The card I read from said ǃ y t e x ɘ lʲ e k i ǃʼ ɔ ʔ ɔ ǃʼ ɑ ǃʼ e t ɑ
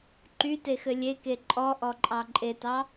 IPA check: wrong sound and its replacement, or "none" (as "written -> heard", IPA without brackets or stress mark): i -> e